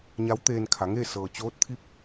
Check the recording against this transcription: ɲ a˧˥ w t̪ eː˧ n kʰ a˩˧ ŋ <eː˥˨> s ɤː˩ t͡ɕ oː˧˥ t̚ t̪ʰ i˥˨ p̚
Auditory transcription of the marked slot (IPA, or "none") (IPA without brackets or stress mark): eː˥˨